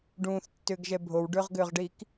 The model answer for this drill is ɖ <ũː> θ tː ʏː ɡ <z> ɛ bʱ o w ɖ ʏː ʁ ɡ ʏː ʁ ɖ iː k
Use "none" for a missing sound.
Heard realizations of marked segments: ũː, ʒ

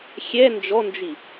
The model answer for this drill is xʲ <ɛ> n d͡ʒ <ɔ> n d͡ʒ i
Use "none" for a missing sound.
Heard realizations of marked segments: ɛ, ɔ

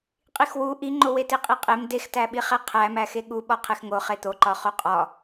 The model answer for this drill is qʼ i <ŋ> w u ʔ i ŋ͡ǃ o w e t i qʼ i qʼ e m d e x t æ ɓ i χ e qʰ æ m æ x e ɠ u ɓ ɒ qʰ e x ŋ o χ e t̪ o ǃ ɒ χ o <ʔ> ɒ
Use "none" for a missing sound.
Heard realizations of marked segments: x, qʼ

